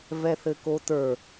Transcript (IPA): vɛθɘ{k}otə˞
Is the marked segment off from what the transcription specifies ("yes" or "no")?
no